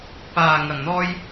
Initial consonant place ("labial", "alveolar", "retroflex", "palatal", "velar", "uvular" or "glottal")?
labial